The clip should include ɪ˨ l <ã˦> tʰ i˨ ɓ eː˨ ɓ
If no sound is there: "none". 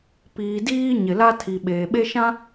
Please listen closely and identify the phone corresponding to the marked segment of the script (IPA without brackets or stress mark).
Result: a˦